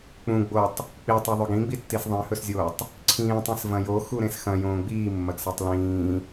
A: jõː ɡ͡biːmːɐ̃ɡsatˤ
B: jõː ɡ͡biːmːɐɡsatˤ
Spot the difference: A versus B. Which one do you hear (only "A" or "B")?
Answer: B